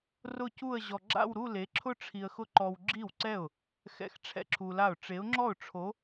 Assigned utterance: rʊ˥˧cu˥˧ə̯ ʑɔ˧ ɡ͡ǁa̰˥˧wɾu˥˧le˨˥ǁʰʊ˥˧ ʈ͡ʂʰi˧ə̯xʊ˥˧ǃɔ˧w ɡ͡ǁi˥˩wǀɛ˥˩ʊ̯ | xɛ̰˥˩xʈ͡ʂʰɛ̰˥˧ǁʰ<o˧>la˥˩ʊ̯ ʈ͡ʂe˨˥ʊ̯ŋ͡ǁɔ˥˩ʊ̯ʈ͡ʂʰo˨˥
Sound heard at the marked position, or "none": u˧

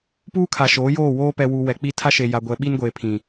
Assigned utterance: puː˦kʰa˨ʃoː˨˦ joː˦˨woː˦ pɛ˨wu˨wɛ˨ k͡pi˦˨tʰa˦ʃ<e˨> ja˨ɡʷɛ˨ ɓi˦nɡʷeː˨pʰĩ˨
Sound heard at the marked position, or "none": e˨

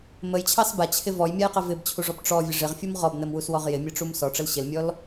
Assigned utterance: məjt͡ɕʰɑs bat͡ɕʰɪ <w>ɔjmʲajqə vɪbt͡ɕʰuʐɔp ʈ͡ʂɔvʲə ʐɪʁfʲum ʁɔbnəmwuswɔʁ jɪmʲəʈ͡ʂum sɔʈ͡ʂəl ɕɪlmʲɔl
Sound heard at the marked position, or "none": v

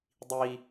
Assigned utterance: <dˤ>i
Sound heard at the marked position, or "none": dˤ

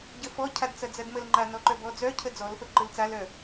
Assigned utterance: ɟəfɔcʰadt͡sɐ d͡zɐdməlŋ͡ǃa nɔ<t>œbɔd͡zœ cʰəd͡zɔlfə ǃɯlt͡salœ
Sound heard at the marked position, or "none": ǃ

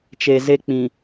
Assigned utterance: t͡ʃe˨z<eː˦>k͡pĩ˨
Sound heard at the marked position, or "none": e˦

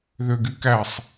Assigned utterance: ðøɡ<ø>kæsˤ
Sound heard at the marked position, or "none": y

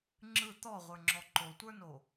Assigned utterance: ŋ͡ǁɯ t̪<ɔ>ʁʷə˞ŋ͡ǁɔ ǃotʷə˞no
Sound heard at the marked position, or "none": ɔ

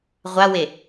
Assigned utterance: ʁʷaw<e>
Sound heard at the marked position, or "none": e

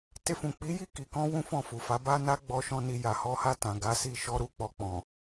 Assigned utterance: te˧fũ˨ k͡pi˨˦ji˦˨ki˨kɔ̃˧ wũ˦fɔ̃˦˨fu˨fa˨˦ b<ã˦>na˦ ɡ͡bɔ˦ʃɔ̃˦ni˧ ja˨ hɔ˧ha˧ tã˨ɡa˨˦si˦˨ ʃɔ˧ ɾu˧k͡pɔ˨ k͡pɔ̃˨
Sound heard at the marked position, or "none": a˦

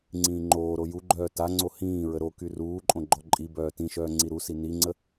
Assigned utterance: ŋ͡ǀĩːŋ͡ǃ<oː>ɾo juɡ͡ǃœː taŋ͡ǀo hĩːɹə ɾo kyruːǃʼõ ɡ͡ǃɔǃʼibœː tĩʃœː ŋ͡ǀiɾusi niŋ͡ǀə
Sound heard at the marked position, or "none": oː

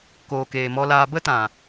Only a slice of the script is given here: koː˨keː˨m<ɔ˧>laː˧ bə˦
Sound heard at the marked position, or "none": ɔ˧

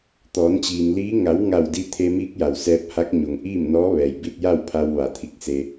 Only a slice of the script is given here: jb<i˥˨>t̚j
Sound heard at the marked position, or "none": i˥˨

